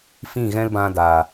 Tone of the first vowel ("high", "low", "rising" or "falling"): falling